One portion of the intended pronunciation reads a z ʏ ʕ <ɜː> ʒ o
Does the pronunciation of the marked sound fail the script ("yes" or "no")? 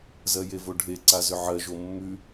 yes